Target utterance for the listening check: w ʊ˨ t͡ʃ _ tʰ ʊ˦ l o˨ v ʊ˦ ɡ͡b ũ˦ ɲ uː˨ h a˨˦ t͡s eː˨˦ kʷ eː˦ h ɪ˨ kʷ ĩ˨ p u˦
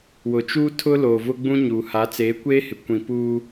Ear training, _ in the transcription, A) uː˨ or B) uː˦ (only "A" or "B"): B